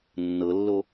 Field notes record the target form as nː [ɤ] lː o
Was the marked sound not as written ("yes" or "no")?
no